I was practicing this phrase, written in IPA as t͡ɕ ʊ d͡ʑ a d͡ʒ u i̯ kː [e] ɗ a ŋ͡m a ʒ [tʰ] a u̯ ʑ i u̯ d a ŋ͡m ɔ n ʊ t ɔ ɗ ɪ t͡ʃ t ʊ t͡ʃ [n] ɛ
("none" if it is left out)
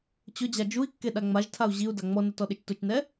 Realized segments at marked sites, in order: e, tʰ, n

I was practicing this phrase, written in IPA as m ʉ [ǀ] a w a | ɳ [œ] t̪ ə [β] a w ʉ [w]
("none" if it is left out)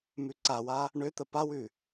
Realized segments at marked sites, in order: ǀ, ø, p, none

